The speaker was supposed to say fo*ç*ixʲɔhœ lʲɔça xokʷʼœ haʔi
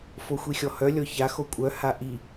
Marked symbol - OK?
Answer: no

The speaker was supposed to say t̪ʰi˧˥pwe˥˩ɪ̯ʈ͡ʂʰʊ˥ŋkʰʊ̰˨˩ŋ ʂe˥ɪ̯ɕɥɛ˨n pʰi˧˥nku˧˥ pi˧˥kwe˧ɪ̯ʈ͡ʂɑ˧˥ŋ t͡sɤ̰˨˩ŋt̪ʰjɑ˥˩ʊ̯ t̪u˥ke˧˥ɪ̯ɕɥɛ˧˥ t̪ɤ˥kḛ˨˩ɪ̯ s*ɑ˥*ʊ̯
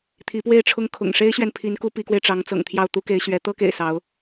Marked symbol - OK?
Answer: no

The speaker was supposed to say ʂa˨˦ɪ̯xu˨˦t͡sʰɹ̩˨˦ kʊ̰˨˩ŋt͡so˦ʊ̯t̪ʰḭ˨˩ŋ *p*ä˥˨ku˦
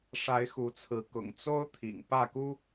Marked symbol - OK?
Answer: yes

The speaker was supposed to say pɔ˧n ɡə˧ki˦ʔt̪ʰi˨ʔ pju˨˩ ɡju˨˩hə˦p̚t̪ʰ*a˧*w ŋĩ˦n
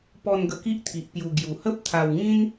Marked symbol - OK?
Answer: yes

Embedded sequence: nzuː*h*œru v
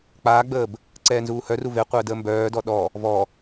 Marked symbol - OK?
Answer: yes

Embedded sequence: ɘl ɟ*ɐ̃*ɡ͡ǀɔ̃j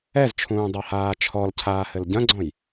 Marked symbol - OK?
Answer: yes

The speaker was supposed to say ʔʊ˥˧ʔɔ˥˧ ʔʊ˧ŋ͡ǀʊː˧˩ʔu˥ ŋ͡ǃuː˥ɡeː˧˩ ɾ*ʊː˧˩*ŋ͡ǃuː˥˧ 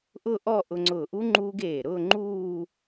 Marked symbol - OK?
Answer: no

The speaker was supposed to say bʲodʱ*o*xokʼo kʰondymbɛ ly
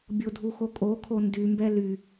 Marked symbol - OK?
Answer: no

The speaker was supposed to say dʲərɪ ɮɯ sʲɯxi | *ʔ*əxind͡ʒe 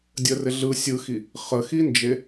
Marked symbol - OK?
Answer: no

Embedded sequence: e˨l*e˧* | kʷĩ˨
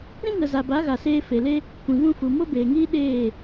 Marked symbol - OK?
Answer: no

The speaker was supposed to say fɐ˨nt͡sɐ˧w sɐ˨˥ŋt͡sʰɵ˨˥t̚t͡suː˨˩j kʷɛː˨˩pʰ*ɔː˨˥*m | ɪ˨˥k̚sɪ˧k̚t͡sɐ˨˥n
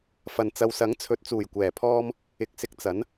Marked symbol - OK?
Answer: no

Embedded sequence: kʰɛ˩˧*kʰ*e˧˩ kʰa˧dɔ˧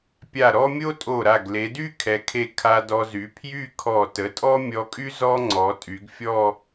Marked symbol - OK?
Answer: yes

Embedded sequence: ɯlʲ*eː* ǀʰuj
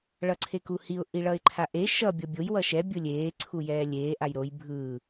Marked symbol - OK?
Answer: yes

